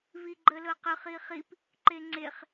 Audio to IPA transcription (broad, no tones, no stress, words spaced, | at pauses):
viɡ͡ǃəlɤqɯχ iχip | ǃeŋ͡ǀeχ